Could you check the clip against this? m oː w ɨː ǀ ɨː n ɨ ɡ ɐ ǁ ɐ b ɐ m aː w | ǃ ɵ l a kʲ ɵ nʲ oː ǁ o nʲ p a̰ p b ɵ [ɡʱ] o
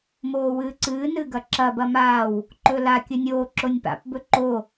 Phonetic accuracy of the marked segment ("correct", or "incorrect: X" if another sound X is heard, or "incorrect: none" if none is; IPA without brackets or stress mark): incorrect: ǃ